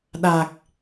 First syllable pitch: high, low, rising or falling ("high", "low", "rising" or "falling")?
low